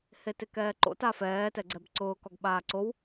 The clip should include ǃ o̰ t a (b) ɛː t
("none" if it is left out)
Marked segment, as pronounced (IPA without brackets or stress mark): f